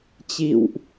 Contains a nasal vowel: no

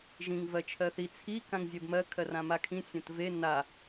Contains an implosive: no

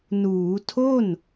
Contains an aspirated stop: yes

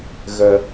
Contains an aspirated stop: no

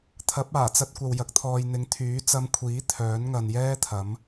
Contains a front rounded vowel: yes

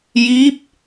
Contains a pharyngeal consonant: no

